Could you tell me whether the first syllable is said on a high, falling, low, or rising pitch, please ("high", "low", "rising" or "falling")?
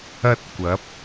high